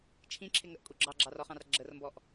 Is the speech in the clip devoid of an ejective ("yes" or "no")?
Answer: no